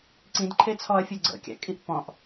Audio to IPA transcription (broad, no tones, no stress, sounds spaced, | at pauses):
ǀ ĩ d ǃʰ e t͡sʰ ɔ ɐ̯ fʲ o ɡ͡ǀ ə̰ kʲ a̰ kʼ i ʔ p ɔ̃ ʔ